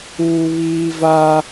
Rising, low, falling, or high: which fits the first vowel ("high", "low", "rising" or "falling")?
high